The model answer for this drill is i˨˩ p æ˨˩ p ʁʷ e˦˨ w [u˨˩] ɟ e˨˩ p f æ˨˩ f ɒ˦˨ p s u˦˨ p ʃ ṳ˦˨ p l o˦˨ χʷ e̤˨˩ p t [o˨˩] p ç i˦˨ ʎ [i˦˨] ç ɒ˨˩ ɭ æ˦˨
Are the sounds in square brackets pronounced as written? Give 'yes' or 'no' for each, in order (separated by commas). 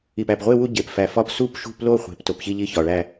no, yes, yes